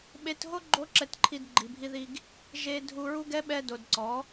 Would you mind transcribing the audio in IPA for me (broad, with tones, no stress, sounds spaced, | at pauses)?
ɓ e˧ t ɦ o˦ ɡ͡ǃ o˦ ǁ ɛ˧ t ǃʰ i˧ d ɡ͡ǃ i˨ bʱ i˧ ð i˧ ɡ | ʒ e˧ dʱ u˧ ɹ u˦ ɡ ɛ˦ ɓ ɛ˧ d o˨ d ǀ ɔ˨˦